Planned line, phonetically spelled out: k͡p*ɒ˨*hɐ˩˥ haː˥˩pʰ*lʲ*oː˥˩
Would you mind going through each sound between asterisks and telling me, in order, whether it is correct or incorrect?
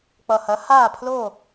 incorrect: ʌ˨, incorrect: l

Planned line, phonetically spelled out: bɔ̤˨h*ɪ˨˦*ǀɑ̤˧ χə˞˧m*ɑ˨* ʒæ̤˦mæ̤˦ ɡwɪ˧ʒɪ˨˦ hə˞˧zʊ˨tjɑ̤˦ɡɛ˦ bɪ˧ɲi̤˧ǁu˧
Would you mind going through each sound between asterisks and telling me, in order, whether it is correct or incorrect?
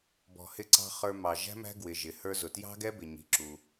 incorrect: ɪ˧, correct

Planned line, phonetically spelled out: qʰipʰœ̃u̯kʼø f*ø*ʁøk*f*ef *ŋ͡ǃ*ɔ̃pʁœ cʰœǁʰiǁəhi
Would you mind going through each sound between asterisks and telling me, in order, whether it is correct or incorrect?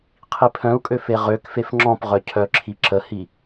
incorrect: e, correct, incorrect: ŋ͡ǁ

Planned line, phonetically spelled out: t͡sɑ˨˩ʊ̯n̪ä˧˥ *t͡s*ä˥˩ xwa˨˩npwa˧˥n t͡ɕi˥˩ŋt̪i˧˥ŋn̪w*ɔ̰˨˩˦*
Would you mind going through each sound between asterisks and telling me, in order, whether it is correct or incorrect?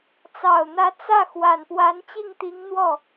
correct, incorrect: ɔ˥˩

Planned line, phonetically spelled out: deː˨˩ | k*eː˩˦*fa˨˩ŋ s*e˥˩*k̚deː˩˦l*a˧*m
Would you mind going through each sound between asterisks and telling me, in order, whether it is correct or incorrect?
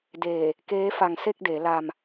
incorrect: eː˦˥, correct, correct

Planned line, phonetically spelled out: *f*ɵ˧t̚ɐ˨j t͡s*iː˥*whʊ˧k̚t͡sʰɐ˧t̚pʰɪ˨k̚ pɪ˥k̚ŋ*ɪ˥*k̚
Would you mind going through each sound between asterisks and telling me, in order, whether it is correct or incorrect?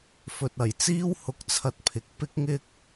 correct, correct, correct

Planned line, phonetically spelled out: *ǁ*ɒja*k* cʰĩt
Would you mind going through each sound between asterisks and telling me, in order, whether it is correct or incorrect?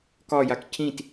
incorrect: k, correct

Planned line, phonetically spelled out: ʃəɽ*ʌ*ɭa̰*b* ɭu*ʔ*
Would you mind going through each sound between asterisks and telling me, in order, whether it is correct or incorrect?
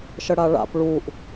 incorrect: a, incorrect: p, correct

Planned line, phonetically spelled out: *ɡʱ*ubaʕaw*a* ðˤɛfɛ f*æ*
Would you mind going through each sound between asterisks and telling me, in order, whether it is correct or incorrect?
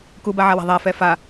incorrect: k, incorrect: a̤, incorrect: a

